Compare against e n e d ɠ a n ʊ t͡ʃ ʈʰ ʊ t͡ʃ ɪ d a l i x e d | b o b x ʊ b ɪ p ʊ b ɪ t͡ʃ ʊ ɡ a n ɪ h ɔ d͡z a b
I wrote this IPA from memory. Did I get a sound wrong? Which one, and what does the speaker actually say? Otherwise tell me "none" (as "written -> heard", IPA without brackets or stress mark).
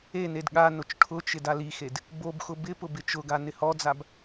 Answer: none